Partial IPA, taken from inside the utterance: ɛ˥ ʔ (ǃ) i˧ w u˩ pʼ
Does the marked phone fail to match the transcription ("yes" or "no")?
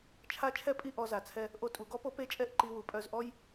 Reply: no